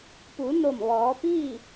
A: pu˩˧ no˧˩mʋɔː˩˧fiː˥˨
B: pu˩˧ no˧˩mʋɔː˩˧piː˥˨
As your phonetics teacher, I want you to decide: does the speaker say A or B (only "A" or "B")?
B